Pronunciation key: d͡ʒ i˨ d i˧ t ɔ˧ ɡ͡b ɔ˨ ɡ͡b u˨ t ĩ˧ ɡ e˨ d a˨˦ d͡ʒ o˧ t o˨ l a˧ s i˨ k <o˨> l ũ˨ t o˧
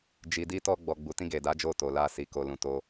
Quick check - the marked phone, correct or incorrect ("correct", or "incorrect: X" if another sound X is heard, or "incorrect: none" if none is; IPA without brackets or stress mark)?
correct